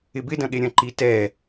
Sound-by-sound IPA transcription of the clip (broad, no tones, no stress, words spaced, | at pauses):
ɪbɪdɐ̃ɠe ɾʲɐ̃ǃi tɛ